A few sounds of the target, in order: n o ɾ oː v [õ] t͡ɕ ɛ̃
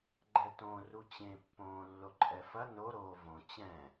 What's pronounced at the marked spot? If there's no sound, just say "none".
õ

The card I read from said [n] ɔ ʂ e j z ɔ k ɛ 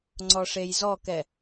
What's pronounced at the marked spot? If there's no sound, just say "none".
ŋ͡ǀ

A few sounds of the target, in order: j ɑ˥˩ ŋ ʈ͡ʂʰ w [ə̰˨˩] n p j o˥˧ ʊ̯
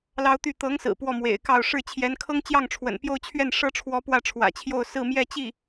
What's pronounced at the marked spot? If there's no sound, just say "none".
ə̰˨˩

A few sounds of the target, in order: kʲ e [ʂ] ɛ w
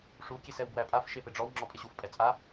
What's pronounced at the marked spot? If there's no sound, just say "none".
s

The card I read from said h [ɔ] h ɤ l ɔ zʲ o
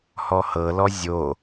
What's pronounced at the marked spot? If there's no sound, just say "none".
ɔ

